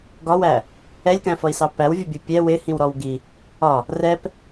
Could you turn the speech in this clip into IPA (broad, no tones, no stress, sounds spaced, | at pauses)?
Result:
ɡ ɒ w æ | ɛ lʲ k æ̃ f ʌ i̯ s ɑ p æ w vʲ ʊ bʲ u pʲ ɛ w ɪ h ĩ w ɾ ɔ w ɡ i | ɒ | r ɛ p